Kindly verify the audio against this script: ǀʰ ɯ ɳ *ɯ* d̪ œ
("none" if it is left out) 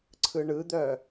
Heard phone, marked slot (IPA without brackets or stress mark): ɯ